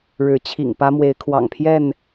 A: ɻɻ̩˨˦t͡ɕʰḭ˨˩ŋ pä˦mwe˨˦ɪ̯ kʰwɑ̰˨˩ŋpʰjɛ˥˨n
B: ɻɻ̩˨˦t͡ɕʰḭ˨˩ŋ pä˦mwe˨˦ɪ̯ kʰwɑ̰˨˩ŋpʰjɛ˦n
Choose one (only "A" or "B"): A